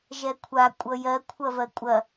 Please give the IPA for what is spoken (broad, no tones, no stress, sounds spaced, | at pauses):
ʒ ɛ kʷʰ a kʷʼ ʌ j ɜ kʷʰ ɐ v ɜ kʷʼ ɐ